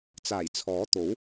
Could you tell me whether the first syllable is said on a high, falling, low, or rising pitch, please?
low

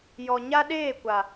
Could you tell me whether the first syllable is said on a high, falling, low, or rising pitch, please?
low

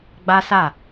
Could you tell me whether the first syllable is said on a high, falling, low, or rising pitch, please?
high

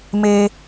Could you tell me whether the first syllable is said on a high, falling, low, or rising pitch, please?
high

